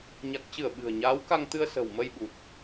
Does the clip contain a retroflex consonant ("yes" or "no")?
no